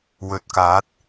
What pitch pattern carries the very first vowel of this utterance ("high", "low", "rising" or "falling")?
low